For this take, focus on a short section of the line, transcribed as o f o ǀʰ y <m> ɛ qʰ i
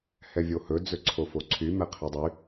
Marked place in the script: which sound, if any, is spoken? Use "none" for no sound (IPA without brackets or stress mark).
m